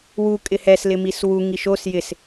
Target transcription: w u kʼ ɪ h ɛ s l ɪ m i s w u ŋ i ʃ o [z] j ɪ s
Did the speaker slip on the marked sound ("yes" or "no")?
yes